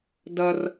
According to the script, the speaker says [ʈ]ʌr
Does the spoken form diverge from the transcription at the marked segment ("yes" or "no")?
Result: yes